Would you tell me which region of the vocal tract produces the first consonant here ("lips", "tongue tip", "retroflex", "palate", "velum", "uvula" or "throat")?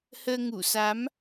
throat